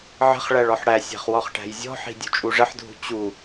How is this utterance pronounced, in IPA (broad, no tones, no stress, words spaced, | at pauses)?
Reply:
ʕə̤χɭæɭ ɔħɽæsʲæ̤χ wɔχʈæ̤jzʲɔ̤ħi̤ dʲṳt͡ʃʼuʐəħdʱṳ t͡ɕu